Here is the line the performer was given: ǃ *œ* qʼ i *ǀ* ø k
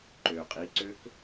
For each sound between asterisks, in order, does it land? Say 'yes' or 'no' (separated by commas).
no, yes